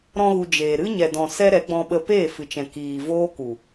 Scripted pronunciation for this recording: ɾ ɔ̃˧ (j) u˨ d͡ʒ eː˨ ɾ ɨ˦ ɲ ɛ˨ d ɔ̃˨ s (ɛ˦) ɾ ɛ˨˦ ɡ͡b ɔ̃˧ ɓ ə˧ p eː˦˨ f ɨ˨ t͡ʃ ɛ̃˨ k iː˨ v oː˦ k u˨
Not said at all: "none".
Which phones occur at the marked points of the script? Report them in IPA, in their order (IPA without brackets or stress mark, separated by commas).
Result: ɣ, ɛ˦